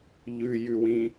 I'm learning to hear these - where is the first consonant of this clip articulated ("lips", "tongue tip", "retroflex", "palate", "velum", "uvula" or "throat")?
palate